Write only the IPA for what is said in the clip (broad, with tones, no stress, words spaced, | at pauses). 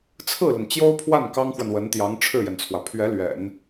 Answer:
t͡sʰɹ̩˥˩lə˩n t͡ɕjo˥ʊ̯pʰwa˥˩n kɑ˥ŋxwə˨nwə˧˥nt̪jɑ˧˥ŋ ʈ͡ʂʰɻ̩˥˩jɛ˩nt͡sʰwä˩ pʰɥɛ˧˥ lɥɛ̰˨˩˦n